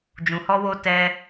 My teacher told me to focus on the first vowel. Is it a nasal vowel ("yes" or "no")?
yes